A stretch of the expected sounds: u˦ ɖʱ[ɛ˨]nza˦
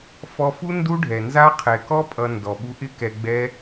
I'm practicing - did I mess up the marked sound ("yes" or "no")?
no